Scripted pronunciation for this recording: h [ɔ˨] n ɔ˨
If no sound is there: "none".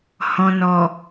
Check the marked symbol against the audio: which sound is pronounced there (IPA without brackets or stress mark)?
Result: ɔ̃˨